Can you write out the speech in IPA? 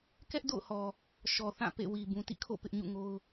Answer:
k ɛ˦ ʔ d o̰˦˨ ʊ̯ h ɔ˨ | ʃ ɔ˨ θ ã˦˨ p ḛ˦˨ w i˨ b ũ˨ t ḭ˦˨ kʰ o̰˦˨ p ɪ˦ ʔ ɲ ṵ˦˨ ŋ o˦ ʊ̯

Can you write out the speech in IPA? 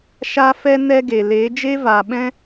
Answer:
ʃ aː˦ f ɛ˦ n ɛ˦ ɡ e˨ l eː˨˦ d͡ʒ e˦ v aː˨ ɓ ɛ̃˦

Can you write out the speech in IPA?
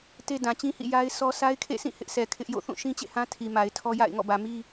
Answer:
t e˦ d ã˨ t͡ɕ ĩ˦ h ḭ˦˨ j a˦ ɪ̯ s ɔ˦ s a˦ ɪ̯ kʰ ḛ˦˨ s ĩ˦˨ h ɪ˦ ʔ sʰ ɛ˨ kʰ ɪ˦ ʔ j o̰˦˨ θ ũ˦˨ ʃ ĩ˦ t͡ɕ ḛ˦˨ h ã˦ tʰ i˨ m a˨ ɪ̯ tʰ ɔ˦ j a̰˦˨ ɪ̯ ŋ ɔ̰˦˨ b ä˨ m i˦

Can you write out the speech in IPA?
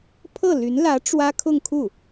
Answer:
pʰ ɤ˥˩ l y˧˥ n l ä˧˥ ʈ͡ʂ w ä˥ kʰ ʊ˥˧ ŋ kʰ u˥˩

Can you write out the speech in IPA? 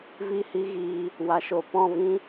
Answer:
v i˦˨ h i˦ ɣ iː˧ | w a˨ ʃ o˨ p ɔ̃˦˨ v ĩ˦

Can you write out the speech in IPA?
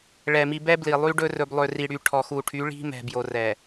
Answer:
ɭ ɛ˨ m i˨ b ɛ˦ b l i˨ lˠ y˦ ɖ ɵ˦ r ɵ˨ b lˠ ø˨ r i˨ ɽ y˨ ʈʰ ɔ˨ x u˨ ʈʰ y˨˦ ɭ i̤˦ m ɛ̤˨ b j o˨ r ɛ˨

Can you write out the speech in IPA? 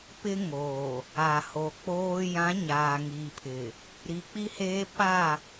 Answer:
p ɪ˦ ŋ o˨ | a˨ h o˨ k͡p oː˦ j ã˨˦ ɲ aː˨ ŋ iː˨ pʰ ɪ˨ | ɾ i˨ k͡p i˦ h eː˦ p a˦˨

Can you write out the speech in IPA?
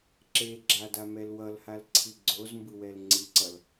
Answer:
ǁ e ɡ͡ǁ a d a m ɛ l w ʌ l h a l ǀʰ i ɡ͡ǀ o z m b ɯ w ɛ l ŋ͡ǀ i ǀ ʌ l

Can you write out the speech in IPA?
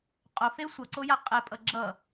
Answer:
qʼ o f e sʷ ʌ ǀ o j a qʼ ɛ pʼ ʌ ɡ͡ǁ ʌ

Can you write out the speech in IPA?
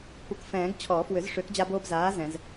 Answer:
kʷ ɤ˨˥ k f ɛ̃ː˨˩˦ ɡ t͡ɕʰ ɔː˨˩˦ f w ʏ˨˩˦ z ʂ ʏː˨˥ k d͡ʑ a˦ b oː˦ b z aː˨˥ z ɛ̃˨˩˦ z

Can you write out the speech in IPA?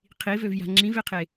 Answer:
qʰ i v ø v j a̤ ŋ͡ǁ ĩ v e qʰ e

